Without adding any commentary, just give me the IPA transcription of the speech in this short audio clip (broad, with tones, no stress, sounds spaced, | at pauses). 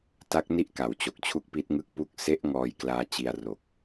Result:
t a˦˥ k̚ n i˥˩ ʔ k a˩˦ w t͡ɕ o˨˩ k̚ t͡ɕʰ u˥˩ k̚ p i˦˥ t̚ ŋ ɯ˥˩ k̚ p u˥˩ k̚ s e˦˥ ʔ ŋ ɔː˧ j k l aː˧ t͡ɕ i˧ a̯ r o˨˩ k̚